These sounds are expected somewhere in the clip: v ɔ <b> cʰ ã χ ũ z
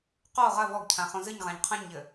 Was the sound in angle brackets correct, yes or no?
no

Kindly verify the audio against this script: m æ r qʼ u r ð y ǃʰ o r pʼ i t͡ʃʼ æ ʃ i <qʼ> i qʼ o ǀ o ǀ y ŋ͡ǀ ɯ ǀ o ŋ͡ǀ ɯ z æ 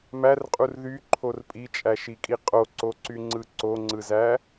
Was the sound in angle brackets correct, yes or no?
no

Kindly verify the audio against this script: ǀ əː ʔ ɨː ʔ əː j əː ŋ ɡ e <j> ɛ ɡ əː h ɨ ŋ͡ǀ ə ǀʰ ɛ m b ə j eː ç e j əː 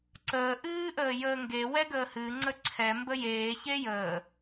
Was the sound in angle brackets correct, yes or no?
no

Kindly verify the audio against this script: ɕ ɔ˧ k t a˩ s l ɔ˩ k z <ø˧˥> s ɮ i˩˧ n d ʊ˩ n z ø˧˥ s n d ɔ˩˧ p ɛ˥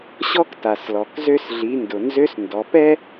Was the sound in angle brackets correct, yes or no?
no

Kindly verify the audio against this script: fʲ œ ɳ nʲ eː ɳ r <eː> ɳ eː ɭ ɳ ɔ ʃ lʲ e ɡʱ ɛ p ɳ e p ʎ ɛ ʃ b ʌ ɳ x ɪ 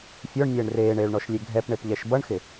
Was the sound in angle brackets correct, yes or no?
yes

